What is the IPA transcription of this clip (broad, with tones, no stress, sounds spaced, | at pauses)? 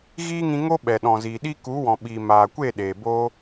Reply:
ɣ iː˦ ŋ ĩ˧ ŋ o˦ ɓ ɛ˨ ɗ ɔ̃˨ z iː˨ ɗ i˦ k u˨˦ w ɔ̃˨ ɓ i˨ m aː˨ kʷ e˦˨ ɗ eː˨ b o˦